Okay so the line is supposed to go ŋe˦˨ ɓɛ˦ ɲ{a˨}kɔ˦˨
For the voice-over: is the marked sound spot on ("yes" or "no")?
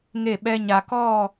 yes